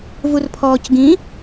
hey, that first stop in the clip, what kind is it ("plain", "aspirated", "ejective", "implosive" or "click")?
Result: aspirated